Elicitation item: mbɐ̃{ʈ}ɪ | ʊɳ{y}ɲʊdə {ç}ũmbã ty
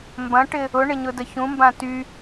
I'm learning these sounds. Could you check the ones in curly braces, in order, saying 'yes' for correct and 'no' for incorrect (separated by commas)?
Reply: yes, no, yes